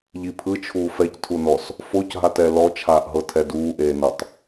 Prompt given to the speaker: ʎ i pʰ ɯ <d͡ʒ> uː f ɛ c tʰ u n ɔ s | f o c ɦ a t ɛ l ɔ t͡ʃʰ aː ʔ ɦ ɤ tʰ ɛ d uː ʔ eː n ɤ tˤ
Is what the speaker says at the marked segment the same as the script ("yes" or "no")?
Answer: no